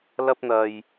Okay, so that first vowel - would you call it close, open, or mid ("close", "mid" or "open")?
open